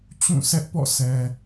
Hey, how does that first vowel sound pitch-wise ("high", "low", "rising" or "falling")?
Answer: falling